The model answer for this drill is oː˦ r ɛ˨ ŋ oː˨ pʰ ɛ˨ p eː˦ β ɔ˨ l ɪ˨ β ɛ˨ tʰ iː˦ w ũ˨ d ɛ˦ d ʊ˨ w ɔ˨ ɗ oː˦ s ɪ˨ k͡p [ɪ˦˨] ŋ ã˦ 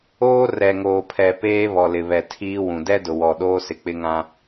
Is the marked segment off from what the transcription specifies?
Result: yes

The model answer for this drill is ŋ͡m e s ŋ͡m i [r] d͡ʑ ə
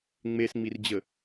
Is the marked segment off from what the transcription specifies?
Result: no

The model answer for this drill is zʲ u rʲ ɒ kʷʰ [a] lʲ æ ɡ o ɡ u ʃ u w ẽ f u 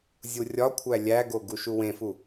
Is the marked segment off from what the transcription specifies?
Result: yes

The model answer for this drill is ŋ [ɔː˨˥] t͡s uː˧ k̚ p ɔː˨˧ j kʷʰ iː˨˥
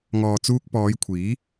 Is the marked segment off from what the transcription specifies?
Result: yes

